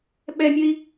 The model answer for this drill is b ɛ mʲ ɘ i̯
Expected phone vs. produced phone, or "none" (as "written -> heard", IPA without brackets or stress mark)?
b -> ɓ